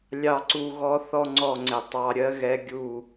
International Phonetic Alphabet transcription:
lʲɑ˨ǀu˨ ɣɔ˦θɔ˦ŋ͡ǀɔ˦˨ŋ͡ǀɪ˨ tˤɑ˨ɾʲɜ˦ ɣɛ˦ɡʲu˦˨

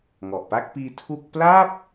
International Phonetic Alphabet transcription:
ŋɔ˨˩ʔ pa˥˩k̚piː˧ tʰu˥˩k̚ pla˥˩p̚

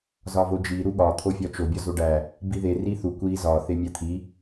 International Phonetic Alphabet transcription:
zɒvod͡ʒi ɾuɠɒ t̪ʰofʲɒt͡ʃo bʲɒzoɖæ | biðe riθu kʷi zɒ θemʲæt̪ʰi

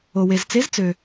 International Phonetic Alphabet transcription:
o˩we˩z t͡se˨˦zt͡sø˩

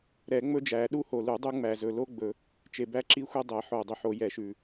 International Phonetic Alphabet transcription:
ɾɛ˨˩˦ŋ͡mɵ˦d͡ʒæ˨˩˦ ɗu˦ho˨˩lu˨˩˦ dˤu˦ŋ͡mæ˨˩zɵ˨˩ lo˦ɡ͡bɵ˨˩˦ | t͡ʃe˨˩bæ˦ǁi˦xʷe˦ dˤɛ˨˩˦ħo˨˩ dˤɵ˨˩ħo˨˩˦ jɛ˨˩˦ʃʉ˨˩

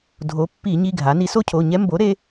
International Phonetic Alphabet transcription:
dʱo˩˧ pːi˧˩˧ɲi˩˧˩ɡʱa˩˧ ni˩˧so˥˧cʰo˩˧˩ɲɛ˦˥ mbo˩˥ ɾe˩˧

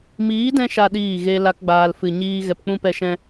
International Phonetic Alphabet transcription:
miː˨˦dɛ̃˧ʃa˨ ɗiː˦˨ɣe˦ la˦kɡ͡baː˧l fɨ˨ɲiː˦ ɣɛ˧pk͡pũ˦ pɛ˧ʃɛ̃˧

